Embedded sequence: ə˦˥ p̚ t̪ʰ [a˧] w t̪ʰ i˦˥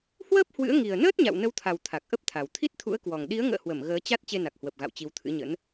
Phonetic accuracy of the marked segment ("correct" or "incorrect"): incorrect